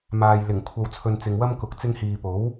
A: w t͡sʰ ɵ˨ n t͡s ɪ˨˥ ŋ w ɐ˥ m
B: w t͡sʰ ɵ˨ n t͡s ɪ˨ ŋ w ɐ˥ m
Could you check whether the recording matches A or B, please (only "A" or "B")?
B